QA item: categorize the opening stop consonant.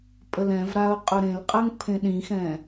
ejective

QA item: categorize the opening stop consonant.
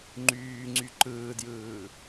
click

